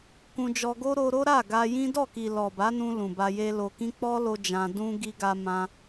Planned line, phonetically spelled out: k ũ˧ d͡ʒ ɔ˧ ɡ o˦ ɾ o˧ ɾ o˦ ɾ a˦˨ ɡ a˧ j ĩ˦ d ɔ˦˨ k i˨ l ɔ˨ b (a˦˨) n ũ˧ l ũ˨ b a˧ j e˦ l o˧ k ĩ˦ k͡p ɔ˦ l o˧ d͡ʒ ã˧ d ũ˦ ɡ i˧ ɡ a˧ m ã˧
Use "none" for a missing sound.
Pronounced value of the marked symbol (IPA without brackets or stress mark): a˨˦